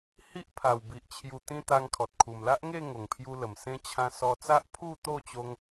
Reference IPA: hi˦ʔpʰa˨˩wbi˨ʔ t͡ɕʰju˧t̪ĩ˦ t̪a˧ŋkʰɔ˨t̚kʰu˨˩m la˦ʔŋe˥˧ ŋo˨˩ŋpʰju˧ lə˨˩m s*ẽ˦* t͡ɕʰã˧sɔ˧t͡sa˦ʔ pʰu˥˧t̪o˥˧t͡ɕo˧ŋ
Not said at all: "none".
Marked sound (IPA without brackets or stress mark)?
ẽ˦